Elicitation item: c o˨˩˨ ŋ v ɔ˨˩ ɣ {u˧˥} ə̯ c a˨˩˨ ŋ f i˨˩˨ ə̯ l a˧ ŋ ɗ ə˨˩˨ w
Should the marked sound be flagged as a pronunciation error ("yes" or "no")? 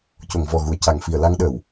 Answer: yes